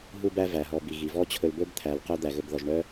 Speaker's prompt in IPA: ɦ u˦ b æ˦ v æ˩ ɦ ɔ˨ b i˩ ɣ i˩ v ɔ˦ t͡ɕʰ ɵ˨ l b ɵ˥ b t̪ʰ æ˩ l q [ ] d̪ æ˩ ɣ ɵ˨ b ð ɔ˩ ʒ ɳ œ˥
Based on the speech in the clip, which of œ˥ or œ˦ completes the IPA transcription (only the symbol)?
œ˦